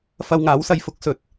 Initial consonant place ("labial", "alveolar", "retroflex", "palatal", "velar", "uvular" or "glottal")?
labial